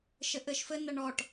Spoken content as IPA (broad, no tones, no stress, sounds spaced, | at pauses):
ʃ ɘ ʔ ɘ ʃ f ɘ n ɐ ɳ ɔ ʈ